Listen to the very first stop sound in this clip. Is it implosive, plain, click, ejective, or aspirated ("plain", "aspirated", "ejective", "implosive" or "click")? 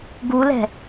plain